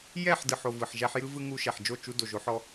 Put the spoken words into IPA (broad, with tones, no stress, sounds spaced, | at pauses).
j ɛ˦˨ ħ d ɯ˨ ħ o˨ v ɯ˨ ħ ʒ æ˦ ħ j ɯ˦ v ɯ˦ ŋ u˧ ʃ ɛ˨ ħ d͡ʒ o˦˨ t͡ʃ u˧ d o˨ ʒ o˧ ħ ɔ˧